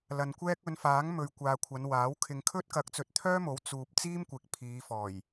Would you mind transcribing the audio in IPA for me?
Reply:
l ɐ˨ n kʷ ɛː˥ k̚ ɵ˨˧ n f aː˨˥ ŋ m ɵ˨ ɥ kʷ aː˨ kʷʰ ɐ˨˧ n w aː˨˥ w kʰ ɪ˨ ŋ kʰ ɵ˥ t̚ k ɐ˨˥ k̚ t͡s ɵ˨ t̚ t̪ʰ œː˥ m o˨˥ w t͡s uː˨ p̚ t͡s iː˥ m kʷ ɪ˨˥ k̚ pʰ iː˨˧ f ɔː˨˩ j

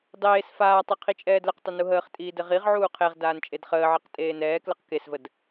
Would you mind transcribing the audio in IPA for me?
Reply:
dˤ eː s f aː tˤ ɘ qʰ i t͡ʃʼ ɛː d l ə q tˤ ə n u ɦ əː χ tʼ iː d ɘ ʁ i ʁ ʕ uː qʰ e ʁ d aː n t͡ʃʼ e d χ əː ʕ i q tʼ eː n ɛː k l ə q k e s v ə d

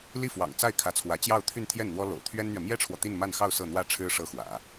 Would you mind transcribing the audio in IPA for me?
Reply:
l i˥˩ f w ɑ̰˨˩ ŋ t͡s a˥˩ ɪ̯ kʰ ä˧˥ t͡sʰ w ä˧˥ t͡ɕ j ɑ˥˧ ʊ̯ t̪ʰ y˥˧ n t̪ʰ j ɛ˥˩ n n̪ w ɔ˥ l o̰˨˩ ʊ̯ t̪ʰ ɥ ɛ˥ n n̪ ɥ ɛ˨ m j ɛ˥ ʈ͡ʂʰ w ɔ˨ t̪ i˥˧ n m a˥˧ n x ɑ˥˧ ʊ̯ s ɤ˥˧ n̪ w ä˥˩ ʈ͡ʂʰ ɻ̩˥ ʂ ɤ˥ x w ä̰˨˩˦

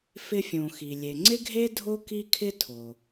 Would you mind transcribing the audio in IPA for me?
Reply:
f ɪ˧ fʲ õ˩ x i˩ lʲ e˩ ŋ͡ǀ ɪ˥ ɡʱ e˥ dʱ o˥ k i˥ kʰ ɪ˥ tʰ o˩

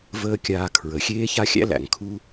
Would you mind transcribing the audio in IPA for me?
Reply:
v əː˦ kʲ aː˧ kʰ ɹ ə˨ xʲ eː˦ ç a˦ xʲ æ̰˦ l æ̰˨ ŋ kʰ u˦

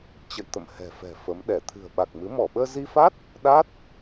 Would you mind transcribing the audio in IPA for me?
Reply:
t͡ɕ ə̰˧˨ j t̪ ə̰˧˨ m h ɛ̤˨˩ f ɛ̤˨˩ f ə˨˦ m ɗ ɛ˧˩ t̪ʰ ɨ̤˨˩ ə̯ ɓ a˨˩ k̚ m ɨ˨˦ m ɔ˧˩ ɓ əː˧ z i˧ f a˦˥ t̚ | ɗ a˦˥ t̚

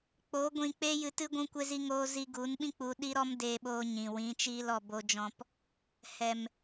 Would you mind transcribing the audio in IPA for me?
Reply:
k͡p o˨˦ ɡʷ ĩ˧ k͡p eː˦ j ɨ˧ t ɨ˦ ɡʷ ũ˦ kʷ e˦ z i˦ ŋ oː˦ z i˧ ɡ u˨˦ n ɓ ĩ˦ k͡p u˧ ɗ i˦ ɾ ɔ˦ m d eː˧ ɓ oː˧ ɲ ĩ˨ w ĩ˨˦ t͡ʃ iː˦ l ɔ˧ b o˧ d͡ʒ ɔ̃˧ p | h ɛ˨ m

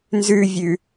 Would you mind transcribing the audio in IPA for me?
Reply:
n z ʉ vʲ ʉ

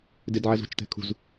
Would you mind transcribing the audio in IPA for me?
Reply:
d ɪ d ʕ ɛ z ṳ t͡ʃ t ɛ̤ kʰ ṳ z

